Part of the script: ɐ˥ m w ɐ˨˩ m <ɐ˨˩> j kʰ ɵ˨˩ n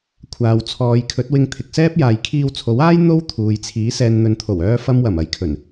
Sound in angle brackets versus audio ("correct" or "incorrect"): incorrect